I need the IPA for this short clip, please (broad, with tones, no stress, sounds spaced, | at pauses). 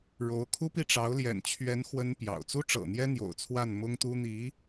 ɻ o˧˥ ʊ̯ kʰ u˥ p i˥˩ ʈ͡ʂ ɑ˧˥ ʊ̯ l j ɛ̰˨˩ n t͡ɕʰ ɥ ɛ˧˥ n x w ə˥ n p j ɑ̰˨˩ ʊ̯ t͡s u˥ ʈ͡ʂ ɤ̰˨˩ n̪ j ɛ˥ n̪ j o̰˨˩ ʊ̯ t͡sʰ w a˥˩ n m ʊ˥ ŋ t̪ u˥ n̪ i˧˥